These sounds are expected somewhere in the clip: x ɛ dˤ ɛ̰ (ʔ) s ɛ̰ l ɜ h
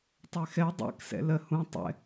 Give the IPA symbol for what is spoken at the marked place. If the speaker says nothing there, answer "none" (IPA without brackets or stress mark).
k